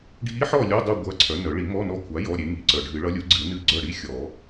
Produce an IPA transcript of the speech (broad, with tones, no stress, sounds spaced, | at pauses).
ɖʱ i˧˥ ħ ɔ˦˨ lʲ o˧˥˧ dˤ u˦˨ ɡʷ ɐ˧˥˧ ǀʰ œ˩˥ n œ˨˩˦ ɭ i˨˩˦ m ɔ˧˥˧ n ɔ˧˥ kʷʰ a˩˥ j ɔ˧˥˧ ɾʲ e˩˥ ŋ i˨˩˦ ǀ œ˨˩ ɖʱ ɨ˨˩˦ ɭ ʌ˧˥ lʲ u˩˥ ɡ͡ǀ ɨ˨˩˦ n ɨ˦˨ ɡ͡ǀ œ˦˨ ɽ i˧˥˧ xʲ ɔ˨˩˦